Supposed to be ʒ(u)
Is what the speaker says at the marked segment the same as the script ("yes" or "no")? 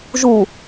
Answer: yes